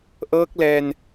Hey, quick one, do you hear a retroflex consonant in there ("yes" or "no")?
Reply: no